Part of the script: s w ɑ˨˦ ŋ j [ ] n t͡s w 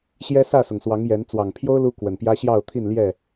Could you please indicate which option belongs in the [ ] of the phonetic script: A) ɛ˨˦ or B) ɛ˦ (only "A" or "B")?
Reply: A